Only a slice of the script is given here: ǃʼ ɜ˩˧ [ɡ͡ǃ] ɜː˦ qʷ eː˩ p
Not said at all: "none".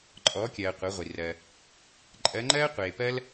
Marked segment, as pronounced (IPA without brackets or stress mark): ŋ͡ǃ